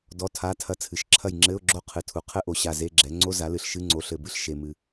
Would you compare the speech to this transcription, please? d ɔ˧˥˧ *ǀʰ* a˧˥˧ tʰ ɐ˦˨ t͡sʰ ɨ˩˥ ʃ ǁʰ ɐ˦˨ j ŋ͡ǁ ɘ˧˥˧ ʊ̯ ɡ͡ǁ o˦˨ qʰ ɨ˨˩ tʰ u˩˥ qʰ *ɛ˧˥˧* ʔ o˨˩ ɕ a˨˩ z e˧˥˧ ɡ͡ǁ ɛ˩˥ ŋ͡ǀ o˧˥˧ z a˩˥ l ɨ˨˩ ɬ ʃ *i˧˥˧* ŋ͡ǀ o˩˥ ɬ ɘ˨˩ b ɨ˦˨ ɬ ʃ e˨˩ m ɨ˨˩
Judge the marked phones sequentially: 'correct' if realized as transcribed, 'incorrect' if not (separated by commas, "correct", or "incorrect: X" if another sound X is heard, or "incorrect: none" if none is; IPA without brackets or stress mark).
incorrect: tʰ, incorrect: ɘ˧˥˧, incorrect: ɨ˧˥˧